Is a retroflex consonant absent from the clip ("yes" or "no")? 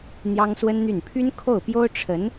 no